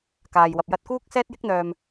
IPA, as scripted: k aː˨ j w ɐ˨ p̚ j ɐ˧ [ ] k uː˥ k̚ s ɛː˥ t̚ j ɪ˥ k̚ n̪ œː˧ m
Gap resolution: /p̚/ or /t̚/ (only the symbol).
t̚